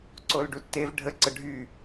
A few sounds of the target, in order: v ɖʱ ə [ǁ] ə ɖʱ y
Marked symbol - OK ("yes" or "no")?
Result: no